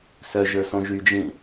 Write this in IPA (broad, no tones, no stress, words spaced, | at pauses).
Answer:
sœʒə˞ sõʒyd͡ʒĩ